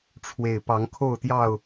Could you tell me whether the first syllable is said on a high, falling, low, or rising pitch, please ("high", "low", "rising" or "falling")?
low